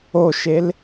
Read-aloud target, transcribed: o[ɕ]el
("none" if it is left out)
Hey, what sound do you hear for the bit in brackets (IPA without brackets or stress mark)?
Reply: ʃ